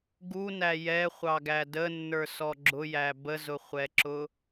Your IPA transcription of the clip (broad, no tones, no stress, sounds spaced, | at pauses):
ɡ u n æ j ɛ χʷ ɑ ɡ æ d ə nː ə˞ s ɔ ɡ͡ǁ ʊ j æ b ə z ʊ χʷ ɛ ǁ ʊ